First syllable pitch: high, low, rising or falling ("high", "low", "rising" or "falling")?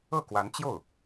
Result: falling